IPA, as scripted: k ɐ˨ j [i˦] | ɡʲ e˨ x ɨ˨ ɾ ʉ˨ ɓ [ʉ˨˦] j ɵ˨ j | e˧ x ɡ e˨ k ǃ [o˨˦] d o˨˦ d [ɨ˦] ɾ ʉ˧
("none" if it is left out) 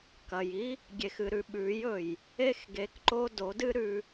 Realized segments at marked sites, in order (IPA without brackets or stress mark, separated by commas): i˦, ʉ˨˦, o˧, ɨ˦